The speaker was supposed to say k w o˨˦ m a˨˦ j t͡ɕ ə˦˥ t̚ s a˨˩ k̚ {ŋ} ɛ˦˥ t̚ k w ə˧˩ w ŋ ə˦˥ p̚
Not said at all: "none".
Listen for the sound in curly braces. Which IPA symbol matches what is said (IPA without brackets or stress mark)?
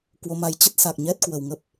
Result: ɲ